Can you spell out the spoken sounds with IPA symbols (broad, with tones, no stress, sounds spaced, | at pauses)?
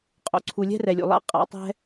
qʼ o̰˨ ǀʰ u˨ lʲ ɛ̤˦ r ɛ˨ lʲ ṵ˨ lˠ a̰˦ qʼ a̰˧ tˤ ɛ̤˦